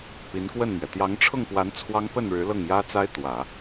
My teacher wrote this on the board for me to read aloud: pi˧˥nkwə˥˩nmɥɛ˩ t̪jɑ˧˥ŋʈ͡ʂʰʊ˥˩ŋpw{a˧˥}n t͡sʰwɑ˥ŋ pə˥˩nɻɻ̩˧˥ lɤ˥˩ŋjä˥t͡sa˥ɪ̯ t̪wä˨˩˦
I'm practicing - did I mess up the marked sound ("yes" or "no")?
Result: no